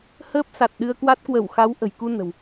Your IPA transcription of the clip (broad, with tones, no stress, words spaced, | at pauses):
həː˦˥p̚sa˨˩t̚ ɗɨ˧ə̯kwa˦˥t̚ kwə˧˩wxa˨˦w ʔə̤˨˩jku˧nə̤˨˩w